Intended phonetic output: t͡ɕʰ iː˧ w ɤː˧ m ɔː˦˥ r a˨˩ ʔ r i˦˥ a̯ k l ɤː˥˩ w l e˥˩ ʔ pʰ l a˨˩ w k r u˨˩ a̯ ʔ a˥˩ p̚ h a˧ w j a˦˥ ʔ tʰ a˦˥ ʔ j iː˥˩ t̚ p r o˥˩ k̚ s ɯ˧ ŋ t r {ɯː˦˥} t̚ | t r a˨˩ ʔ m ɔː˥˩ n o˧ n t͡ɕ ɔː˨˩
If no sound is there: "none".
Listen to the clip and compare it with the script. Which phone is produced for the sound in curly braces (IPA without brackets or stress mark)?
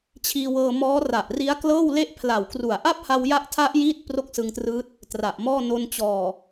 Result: ɯː˦˥